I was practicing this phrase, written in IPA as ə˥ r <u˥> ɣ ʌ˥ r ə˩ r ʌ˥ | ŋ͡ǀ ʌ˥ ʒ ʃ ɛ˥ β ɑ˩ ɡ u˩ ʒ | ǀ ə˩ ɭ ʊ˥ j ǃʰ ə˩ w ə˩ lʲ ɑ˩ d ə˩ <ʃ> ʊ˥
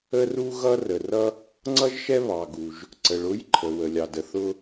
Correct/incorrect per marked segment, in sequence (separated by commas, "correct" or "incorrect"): correct, incorrect